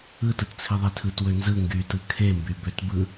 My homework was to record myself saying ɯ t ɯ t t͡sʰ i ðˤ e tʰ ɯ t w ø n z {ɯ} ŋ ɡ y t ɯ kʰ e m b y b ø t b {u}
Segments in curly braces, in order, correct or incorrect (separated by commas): correct, incorrect